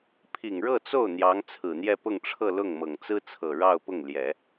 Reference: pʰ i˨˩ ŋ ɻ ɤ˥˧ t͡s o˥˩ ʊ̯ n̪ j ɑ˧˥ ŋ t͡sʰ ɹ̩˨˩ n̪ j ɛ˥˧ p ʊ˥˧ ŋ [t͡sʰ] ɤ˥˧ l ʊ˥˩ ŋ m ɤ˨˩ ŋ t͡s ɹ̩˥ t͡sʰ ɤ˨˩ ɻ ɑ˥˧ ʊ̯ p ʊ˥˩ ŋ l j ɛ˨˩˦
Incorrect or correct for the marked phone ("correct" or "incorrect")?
incorrect